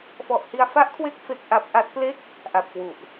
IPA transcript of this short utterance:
f ɔ˨˩ ʔ h i˧ a̯ f a˦˥ ʔ kʰ w e˦˥ k̚ f e˦˥ k̚ ʔ a˦˥ p̚ ʔ a˦˥ t̚ p l e˥˩ k̚ | ʔ a˨˩ p̚ k w u˨˩ ʔ

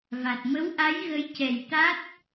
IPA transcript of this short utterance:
v a˨˩ t̚ m ə˧˥ w ʔ a˧˥ j ɣ ə˧˥ j c ɛ˨˩ j t̪ a˦˥ t̚

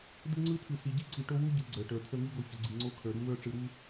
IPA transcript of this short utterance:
d ɯ˦ ŋ͡ǀ ɯ˦ tʰ ɯ˨ s i˨ ɟ i˦ ǀ i˨ ʈ o˦ w u˦ ɟ ɯ˨ ɡ͡ǀ ə˞˨ ʈ ə˞˨ t̪ʰ ə˦ ŋ i˦ ɡ o˨ ç ə˨ ɡ͡ǀ i˨ ŋ͡ǀ o˦ kʰ ə˞˨ ɾ u˦ w ə˞˦ ʈ͡ʂ ɯ˨ ɾ u˦

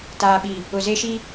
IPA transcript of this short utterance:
t aː˨ ɓ i˨ | ʊ˨ z e˦ ʃ i˦

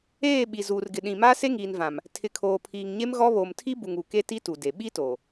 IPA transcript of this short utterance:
eː˦˨ ɓ i˨ z uː˨ r ɡ ɪ˨ ɗ ĩ˨ m a˦ s e˦ ŋ iː˨ n v ã˨ m | tʰ ɪ˨ kʰ oː˨ pʰ iː˨ ŋ ɲ e˦ m ɣ ɔ˦ β oː˨ m tʰ i˦ b u˨ ŋ u˨ k e˦ t i˦ t u˨ d e˨ ɓ i˦ t oː˨

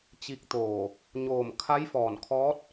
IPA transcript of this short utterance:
t͡ɕ i˧ k̚ t̪ oː˧˩ | ɲ oː˧˩ m kʰ a˧˥ j f ɔː˧˩ n kʰ ɔː˧˥ t̚

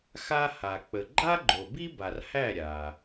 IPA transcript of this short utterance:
x a˥ h a˨ k͡p ə˨ ɡ͡ǃ a˥ ɡ͡ǃ o˨ b i˥ b a˨ r h æ˥˨ ɾʲ a˨

